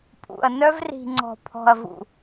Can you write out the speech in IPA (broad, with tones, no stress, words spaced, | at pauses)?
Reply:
pʼṵ˨ɐ̯ nœ˦vri̤˨ŋ͡ǀɔ̤˨ pʰɔ̤˨ɐ̯vṵ˨